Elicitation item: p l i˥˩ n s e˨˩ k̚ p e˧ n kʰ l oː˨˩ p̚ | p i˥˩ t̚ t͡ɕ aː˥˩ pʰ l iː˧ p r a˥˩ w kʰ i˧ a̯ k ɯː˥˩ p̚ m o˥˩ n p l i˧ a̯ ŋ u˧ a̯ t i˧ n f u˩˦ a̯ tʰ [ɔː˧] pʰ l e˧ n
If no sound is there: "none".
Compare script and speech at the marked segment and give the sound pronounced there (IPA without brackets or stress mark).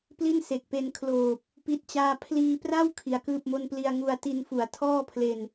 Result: ɔː˥˩